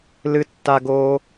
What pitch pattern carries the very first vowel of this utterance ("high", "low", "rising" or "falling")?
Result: high